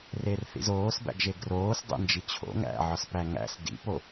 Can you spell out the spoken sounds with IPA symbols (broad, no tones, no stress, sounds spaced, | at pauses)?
r e r θ ḭ z oː s b æ̰ ɡ ʒ e ɡ r oː s dˤ ḛ n d͡ʒ i t͡ɕʰ o̰ ŋ æ̰ ʕ ɒ s p æ ŋ æ̰ s d ḭ p o